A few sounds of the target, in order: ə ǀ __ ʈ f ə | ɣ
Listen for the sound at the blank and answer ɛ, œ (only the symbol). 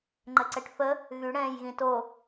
ɛ